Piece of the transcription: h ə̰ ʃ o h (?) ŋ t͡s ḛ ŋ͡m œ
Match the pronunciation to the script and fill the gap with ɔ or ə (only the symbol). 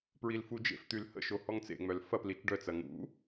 ɔ